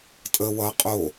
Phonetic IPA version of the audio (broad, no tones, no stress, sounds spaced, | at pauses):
tʼ ə w ʌ qʼ o